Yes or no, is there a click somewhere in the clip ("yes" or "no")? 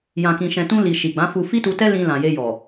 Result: no